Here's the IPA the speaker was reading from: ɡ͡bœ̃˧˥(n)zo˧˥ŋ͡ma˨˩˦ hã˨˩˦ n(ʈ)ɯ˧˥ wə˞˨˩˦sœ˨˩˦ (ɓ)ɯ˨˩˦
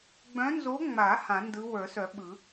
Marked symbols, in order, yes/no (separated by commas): yes, no, yes